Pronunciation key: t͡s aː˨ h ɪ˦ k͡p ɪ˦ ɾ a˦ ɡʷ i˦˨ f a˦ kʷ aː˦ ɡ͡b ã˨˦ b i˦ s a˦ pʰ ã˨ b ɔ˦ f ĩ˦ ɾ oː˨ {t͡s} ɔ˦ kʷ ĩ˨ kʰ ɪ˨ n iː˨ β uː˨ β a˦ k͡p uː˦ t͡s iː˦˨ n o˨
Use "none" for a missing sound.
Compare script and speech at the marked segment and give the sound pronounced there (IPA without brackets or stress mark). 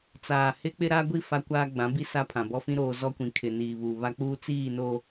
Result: z